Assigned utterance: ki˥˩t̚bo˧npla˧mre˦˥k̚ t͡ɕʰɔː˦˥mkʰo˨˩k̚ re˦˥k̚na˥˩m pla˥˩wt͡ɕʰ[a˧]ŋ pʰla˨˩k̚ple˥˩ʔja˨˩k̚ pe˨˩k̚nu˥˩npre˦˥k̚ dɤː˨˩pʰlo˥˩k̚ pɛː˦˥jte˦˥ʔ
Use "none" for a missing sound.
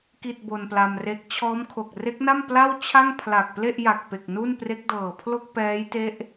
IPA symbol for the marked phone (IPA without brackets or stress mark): a˥˩